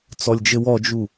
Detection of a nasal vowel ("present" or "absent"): absent